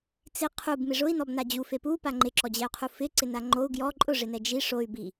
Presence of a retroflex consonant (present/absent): present